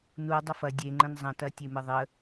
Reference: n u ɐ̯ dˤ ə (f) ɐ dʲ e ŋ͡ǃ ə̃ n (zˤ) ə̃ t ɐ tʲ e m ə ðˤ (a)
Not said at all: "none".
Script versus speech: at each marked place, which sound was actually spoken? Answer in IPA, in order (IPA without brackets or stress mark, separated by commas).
f, zˤ, ə